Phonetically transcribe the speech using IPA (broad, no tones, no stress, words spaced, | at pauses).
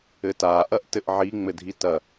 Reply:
ɘta ʔɐʔtɘʔʕi ŋ͡mɘdʱitɐ